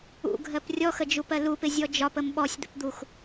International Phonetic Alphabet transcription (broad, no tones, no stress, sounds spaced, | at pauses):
ṵ ɡʱ ɜ p rʲ ɔ x ə d͡ʒ u p ɜ l u p ɪ zʲ ɔ d͡ʒ ɒ p ə m ɓ ɔ sʲ d̪ ə̰ p d̪ u x